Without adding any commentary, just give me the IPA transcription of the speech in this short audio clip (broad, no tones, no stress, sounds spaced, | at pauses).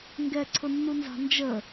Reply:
ŋ ɡ ɛ ǀʰ ʊ nː u n z ɑ̤ n d͡ʒ ə